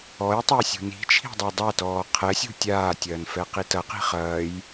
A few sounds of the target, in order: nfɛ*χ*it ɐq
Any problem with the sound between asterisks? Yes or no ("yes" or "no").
yes